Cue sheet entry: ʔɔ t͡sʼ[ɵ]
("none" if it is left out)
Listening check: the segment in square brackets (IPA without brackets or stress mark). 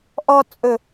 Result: ɵ